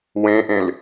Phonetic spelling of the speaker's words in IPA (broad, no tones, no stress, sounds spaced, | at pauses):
w ẽ ʔ ẽ l